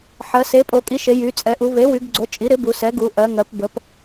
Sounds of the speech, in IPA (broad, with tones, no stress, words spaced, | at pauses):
ħɜ˩˧ se˩˥pʼo˩˧kʼi˩˥ʃe˩˧ jy˩˧ t͡sʼɛ˩˧ʔu˩˧ βe˩˥wy˩˧ɡɡ͡ǀo˩˥ t͡ʃʼi˩˥ɾɪ˩˥bu˩˧ sɛ˩˥ɡu˩˧ʔɜ˩˧ŋɜ˩˧p bə˩˧p